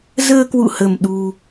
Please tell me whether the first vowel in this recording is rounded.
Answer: no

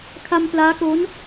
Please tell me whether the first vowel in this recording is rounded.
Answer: no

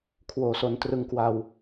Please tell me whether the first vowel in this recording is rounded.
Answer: yes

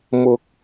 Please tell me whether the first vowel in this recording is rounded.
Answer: yes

